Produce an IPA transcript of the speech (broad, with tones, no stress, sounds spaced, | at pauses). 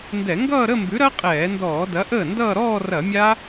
n d ɛ˧˩˧ ŋ ɡ ʌː˥˧ ɾ ə˥˧ m b ʉ˨˥ ɾ ɐ˦˥ qʼ ɛː˧˩˧ n d ɔː˧˩˧ d ɐ˨˥ ʔ əː˥˩ n d ʌː˥˧ ɾ ɔː˥˧ r ɐ˧˩˧ mʲ a˦˥